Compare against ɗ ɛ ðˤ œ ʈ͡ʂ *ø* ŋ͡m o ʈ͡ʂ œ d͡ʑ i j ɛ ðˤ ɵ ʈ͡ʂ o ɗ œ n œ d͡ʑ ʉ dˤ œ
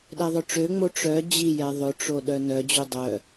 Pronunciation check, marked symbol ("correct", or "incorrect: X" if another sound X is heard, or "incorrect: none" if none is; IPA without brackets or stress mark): correct